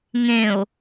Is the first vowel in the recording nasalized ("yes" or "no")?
yes